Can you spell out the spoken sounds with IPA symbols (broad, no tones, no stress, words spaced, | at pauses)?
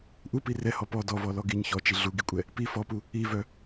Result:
ʔupi rɛhɔ pɔ dɔvɔlɔ ɡiɲ çɔt͡ʃi ɮuɡikʷʼɛ | pi fɔpu | ivœ